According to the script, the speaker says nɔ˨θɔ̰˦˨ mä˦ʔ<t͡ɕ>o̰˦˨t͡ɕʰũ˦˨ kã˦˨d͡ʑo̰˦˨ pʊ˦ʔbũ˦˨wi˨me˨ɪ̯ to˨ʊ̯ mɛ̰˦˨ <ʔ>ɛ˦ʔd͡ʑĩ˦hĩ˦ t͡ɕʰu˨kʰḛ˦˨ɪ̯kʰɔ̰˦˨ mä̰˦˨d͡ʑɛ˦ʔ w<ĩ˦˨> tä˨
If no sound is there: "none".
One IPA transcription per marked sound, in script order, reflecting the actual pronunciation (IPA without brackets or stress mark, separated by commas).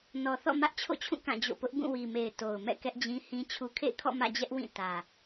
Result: t͡ɕʰ, k, ĩ˦˨